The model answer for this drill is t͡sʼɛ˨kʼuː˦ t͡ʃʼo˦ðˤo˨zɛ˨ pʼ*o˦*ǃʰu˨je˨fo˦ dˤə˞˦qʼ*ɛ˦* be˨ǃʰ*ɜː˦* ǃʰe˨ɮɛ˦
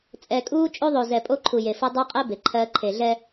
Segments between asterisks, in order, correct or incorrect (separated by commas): correct, correct, correct